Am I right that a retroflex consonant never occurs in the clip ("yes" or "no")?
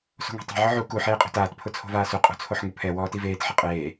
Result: yes